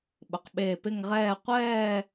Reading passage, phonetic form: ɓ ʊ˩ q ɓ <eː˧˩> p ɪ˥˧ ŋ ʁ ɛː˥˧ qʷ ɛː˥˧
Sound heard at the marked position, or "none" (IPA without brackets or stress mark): eː˧˩